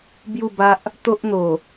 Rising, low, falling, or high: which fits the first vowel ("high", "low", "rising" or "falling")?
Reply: falling